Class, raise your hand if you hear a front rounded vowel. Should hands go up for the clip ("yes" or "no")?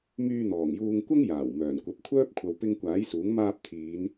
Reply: yes